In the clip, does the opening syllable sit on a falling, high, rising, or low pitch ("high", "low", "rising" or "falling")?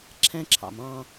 high